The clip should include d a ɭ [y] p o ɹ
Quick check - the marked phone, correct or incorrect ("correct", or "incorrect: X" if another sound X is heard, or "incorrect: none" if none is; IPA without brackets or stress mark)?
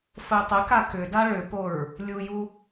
incorrect: ʏ